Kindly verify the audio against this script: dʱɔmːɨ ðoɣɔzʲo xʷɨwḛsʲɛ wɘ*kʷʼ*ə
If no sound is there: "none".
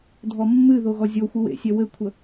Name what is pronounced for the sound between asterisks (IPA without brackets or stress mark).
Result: kʷʰ